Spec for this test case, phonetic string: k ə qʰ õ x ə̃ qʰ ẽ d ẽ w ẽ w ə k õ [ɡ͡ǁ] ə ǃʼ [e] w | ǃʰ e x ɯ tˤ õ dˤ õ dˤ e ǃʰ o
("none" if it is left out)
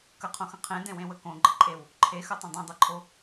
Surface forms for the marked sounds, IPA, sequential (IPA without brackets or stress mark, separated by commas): ɡ͡ǃ, e